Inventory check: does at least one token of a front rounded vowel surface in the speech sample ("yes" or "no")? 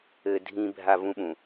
no